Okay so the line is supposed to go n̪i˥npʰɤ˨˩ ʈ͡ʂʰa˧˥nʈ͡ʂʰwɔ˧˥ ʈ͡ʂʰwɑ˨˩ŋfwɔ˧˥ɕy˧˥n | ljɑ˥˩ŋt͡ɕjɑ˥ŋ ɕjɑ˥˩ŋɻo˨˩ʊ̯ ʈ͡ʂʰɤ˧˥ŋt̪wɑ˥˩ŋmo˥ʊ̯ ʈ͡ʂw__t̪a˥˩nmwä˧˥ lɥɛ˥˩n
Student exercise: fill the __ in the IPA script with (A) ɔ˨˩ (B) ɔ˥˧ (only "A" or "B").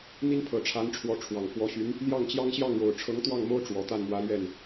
A